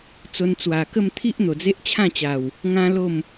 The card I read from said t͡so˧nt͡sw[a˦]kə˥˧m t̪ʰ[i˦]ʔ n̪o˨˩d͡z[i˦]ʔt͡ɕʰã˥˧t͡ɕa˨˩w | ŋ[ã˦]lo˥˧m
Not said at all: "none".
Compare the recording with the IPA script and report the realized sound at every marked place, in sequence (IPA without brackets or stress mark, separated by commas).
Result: a˨˩, i˦, e˦, ã˦